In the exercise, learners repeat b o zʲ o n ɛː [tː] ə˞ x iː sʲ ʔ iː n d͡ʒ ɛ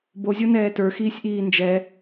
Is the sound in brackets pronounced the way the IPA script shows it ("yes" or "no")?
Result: no